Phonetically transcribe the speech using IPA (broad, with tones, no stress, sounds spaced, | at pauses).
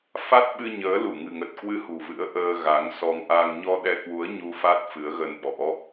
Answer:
f a˦˥ t̚ ɓ ɨ˧ ɲ əː˨˦ l u˧˩ ŋ ɨ̤˨˩ ŋ ə˨˩ t̚ k w ɨ˨˦ h ṳ˨˩ v ɨ̰˧˥ ə̯ ʔ əː˧ ɣ a˨˦ ŋ s ɔ˧ ŋ ʔ a˧ ŋ ɲ ɔ˧ ɗ ɛ˧ k w u˨˦ ə̯ ɲ u˧ f a˦˥ t̚ f ɨ˨˦ ə̯ ɣ ə˧ n ɓ ɔ̰˧˥